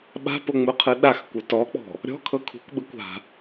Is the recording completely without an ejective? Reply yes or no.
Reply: yes